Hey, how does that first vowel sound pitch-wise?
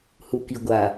low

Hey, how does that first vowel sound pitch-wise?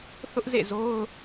high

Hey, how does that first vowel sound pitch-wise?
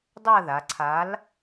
falling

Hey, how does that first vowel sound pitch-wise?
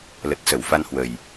low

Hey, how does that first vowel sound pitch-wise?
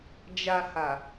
low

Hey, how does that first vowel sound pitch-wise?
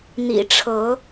low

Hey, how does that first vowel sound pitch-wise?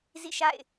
falling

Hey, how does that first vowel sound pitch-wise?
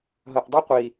low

